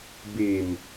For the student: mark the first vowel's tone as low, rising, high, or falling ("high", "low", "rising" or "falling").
low